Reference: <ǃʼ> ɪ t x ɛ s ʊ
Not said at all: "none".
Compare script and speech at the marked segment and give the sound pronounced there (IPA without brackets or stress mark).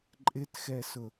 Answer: ǃʼ